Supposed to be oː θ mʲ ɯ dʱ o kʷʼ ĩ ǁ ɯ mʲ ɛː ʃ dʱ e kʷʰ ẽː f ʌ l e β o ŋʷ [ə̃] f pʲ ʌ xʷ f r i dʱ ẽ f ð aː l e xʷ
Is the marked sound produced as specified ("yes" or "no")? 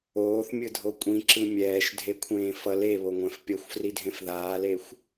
no